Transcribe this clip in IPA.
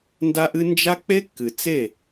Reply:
nda˦ʔɨ˦ nd͡ʒa˦ k͡pe˦kːɨ˨t͡se˦˨

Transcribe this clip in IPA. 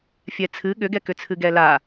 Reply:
fʲɛt͡sʰɨ ɠʏɡɛkʏt͡sʰɨ ɡɛla

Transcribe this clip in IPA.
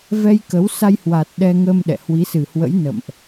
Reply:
vɛ˧jkə˨˦wsa˧j hwa˨˩t̚ ɗɛ˧ ŋə˧m ɗɛ̰˧˨hwi˨˦sɨ˨˩hwə̰˧˥j nə̰˧˨mʔ

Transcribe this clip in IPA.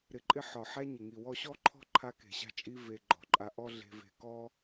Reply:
ɾɪ˨ǃʼɪ˧ ħɒ˨ ħæ˦ɲɪ˨ŋi˨ wɔ˧ɕɔ˦ǃʰɔ̤˦ ǃʰa˦ke̤˨ɕa̤˦t͡ʃʼi˦ ve˧ ɡ͡ǃɔ̤˨ǃʼa˧ʔɔ˦ ɮe̤˧ve̤˧ kɔ˦

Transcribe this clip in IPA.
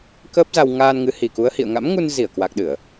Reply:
kəː˦˥p̚za˧w ŋaː˧n ŋɨ˨˦hi˨˩ku˨˦ə̯hḭ˧˨ə̯ ŋa̰˧˥mŋu˧n zi˧˩ə̯kwa˨˩k̚ɗɨ˧˩˨ə̯

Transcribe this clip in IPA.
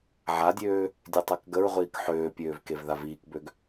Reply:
ʕadʲøː | dʲøtˤakɡəɹʁʷiːk ħøːpʲøːv kevðaviːkbøɡ

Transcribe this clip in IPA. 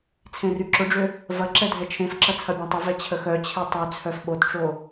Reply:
t͡sʰẽryǁʊɖ͡ʐʏ | vɐǁɛ dʱɛt͡ʃʰẽfǁɐ t͡sʰɐbʲɛ̃tˤʊvɛ t͡ɕʰəxœt͡ɕʰe tˤyt͡sʰœf ɓotʈ͡ʂo

